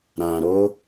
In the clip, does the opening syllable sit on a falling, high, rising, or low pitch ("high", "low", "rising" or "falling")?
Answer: low